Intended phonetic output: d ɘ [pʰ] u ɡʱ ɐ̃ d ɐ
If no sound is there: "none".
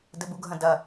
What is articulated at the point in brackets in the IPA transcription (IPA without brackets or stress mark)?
b